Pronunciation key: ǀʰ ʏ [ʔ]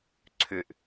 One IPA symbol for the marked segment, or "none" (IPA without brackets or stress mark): ʔ